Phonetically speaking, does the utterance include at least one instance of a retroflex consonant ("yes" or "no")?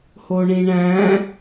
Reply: yes